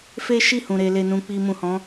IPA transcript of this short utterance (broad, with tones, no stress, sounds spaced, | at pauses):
f e˦ ʃ i˦˨ h ũ˨ ɾ e˧ l e˧ n ũ˧ k͡p i˧ m ũ˨ h ɔ̃˨˦